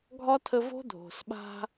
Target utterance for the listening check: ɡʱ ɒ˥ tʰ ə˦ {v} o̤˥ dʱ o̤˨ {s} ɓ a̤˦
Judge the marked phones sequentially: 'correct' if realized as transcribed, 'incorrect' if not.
correct, correct

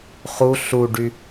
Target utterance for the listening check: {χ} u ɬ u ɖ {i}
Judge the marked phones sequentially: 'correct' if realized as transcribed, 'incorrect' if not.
correct, incorrect: y

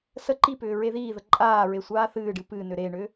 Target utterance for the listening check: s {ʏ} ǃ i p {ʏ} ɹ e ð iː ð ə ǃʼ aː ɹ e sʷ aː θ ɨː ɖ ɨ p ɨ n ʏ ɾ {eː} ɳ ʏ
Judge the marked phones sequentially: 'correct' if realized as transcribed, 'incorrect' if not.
incorrect: ə, incorrect: ʏː, correct

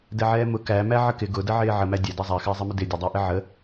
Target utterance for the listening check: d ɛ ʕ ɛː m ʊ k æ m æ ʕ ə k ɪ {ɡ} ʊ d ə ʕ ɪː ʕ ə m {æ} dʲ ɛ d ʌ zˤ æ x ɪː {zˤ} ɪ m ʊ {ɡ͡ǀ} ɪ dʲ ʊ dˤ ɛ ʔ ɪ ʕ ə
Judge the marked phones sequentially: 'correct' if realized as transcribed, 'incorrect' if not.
correct, correct, correct, incorrect: d

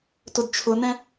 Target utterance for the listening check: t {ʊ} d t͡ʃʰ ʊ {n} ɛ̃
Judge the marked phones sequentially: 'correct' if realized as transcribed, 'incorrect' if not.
correct, correct

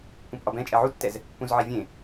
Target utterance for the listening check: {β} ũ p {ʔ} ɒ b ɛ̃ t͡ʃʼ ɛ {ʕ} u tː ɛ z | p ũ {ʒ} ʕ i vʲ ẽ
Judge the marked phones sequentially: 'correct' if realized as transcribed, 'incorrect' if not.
incorrect: p, correct, correct, incorrect: z

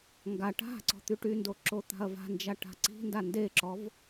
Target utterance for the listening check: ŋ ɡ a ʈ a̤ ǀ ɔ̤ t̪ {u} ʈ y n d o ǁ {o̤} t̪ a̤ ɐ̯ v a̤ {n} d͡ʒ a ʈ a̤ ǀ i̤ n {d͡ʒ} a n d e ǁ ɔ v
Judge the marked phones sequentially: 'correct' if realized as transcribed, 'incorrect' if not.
incorrect: y, incorrect: o, correct, incorrect: d

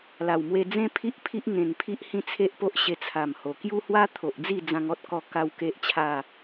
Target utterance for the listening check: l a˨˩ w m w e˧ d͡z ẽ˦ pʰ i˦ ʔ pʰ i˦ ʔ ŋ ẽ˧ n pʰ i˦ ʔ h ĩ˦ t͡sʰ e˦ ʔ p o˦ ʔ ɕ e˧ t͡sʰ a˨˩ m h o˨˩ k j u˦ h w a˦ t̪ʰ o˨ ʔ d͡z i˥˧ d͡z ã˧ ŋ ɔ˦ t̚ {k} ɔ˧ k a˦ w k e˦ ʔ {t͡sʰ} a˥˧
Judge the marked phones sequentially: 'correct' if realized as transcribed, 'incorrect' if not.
correct, incorrect: t͡ɕʰ

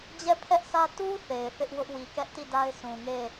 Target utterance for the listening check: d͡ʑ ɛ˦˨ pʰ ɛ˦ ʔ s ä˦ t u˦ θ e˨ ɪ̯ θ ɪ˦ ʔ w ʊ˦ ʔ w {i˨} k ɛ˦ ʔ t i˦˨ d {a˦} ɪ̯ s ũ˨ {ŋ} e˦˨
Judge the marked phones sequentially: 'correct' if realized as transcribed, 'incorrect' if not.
correct, correct, correct

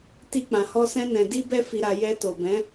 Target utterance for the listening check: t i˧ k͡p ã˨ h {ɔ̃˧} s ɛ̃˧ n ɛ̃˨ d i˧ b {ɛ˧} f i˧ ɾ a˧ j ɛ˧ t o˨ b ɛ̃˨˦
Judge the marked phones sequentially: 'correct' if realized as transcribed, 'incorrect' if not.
incorrect: ɔ˧, correct

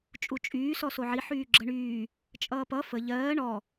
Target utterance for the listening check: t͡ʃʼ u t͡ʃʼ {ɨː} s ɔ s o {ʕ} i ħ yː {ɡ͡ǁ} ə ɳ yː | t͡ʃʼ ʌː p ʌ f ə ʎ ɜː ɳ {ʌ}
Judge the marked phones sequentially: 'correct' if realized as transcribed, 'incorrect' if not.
incorrect: yː, correct, correct, incorrect: ɔ

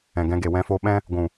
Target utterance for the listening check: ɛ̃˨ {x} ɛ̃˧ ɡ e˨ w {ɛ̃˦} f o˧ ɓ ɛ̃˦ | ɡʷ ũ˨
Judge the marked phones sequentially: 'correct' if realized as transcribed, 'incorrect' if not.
incorrect: ɡ, incorrect: ɛ̃˧

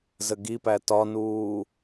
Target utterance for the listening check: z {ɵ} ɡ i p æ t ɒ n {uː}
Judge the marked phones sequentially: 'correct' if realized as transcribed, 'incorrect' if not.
incorrect: ə, correct

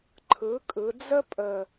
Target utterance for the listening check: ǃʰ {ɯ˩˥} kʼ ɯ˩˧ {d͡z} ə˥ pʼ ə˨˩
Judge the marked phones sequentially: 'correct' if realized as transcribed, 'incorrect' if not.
correct, correct

